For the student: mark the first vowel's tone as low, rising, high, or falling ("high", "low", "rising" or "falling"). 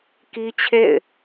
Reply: high